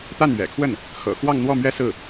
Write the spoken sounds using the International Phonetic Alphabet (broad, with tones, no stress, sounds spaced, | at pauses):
t̪ a˥˩ n ɥ ɛ̰˨˩ kʰ w ə˥˩ n | x ɤ̰˨˩ x w ɑ˥˧ ŋ n̪ w ɔ˥˧ m ɥ ɛ˥˧ s ɹ̩˥˩